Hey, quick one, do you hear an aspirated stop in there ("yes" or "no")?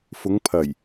yes